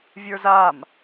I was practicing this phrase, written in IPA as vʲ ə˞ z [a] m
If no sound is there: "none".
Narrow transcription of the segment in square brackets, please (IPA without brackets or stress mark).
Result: a